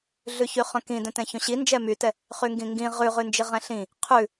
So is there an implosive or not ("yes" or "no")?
no